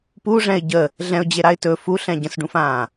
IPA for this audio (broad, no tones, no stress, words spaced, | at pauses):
puʐɛ̃ɪ̯ ɟə | ɮɛ̃ʊ̯d͡ʑeɾaɪ̯ tɵ fuɬɛ̃ ɟə̃sɖũfãː